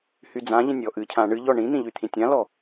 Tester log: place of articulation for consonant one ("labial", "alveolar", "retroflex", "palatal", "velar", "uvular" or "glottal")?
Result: glottal